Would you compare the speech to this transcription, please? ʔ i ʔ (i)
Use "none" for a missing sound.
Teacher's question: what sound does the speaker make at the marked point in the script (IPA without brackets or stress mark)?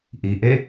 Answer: e